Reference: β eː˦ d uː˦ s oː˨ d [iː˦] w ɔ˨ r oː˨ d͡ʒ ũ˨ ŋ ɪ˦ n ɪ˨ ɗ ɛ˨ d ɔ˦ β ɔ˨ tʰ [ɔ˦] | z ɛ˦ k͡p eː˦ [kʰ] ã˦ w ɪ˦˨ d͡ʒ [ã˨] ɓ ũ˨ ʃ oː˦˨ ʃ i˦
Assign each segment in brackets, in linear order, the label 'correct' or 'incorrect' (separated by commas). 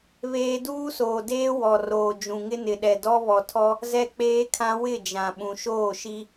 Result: incorrect, correct, correct, correct